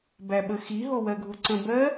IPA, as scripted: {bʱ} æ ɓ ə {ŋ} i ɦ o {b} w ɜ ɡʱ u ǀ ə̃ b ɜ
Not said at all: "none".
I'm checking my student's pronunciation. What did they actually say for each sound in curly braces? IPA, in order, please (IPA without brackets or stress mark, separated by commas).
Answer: b, x, none